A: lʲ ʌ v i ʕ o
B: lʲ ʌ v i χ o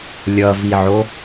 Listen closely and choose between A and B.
A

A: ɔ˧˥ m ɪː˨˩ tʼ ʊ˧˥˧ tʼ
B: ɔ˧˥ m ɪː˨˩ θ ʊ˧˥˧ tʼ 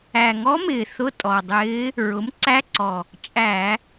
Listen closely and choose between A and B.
B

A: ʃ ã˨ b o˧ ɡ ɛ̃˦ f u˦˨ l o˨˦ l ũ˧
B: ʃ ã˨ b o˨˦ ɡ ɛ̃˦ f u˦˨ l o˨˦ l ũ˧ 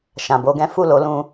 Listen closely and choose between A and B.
A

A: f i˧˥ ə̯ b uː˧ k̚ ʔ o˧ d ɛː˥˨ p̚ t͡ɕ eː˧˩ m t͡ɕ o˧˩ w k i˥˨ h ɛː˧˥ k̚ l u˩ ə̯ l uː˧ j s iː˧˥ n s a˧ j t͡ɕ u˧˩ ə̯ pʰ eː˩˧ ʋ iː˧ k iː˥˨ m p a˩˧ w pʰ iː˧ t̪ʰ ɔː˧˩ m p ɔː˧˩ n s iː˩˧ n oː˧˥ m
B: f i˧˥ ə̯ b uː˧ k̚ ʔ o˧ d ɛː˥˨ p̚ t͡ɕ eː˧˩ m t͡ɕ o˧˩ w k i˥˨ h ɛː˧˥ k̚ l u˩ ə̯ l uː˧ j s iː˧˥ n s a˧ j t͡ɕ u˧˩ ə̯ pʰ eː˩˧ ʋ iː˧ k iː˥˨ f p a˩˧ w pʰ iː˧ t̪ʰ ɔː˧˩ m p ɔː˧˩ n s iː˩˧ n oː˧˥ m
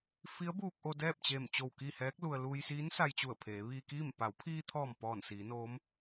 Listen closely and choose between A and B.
A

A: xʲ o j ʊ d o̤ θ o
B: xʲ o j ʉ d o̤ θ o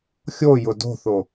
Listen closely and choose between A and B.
A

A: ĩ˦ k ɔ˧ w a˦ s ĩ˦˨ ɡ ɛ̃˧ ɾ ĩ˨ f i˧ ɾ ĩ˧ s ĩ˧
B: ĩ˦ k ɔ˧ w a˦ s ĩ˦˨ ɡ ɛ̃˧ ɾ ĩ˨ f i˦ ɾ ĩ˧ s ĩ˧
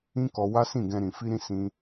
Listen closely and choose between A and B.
A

